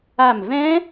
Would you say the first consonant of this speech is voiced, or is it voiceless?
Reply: voiced